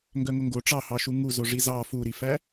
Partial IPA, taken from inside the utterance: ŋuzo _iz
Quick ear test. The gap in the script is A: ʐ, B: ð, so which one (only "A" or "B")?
A